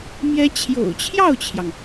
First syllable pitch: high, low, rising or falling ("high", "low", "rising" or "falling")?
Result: high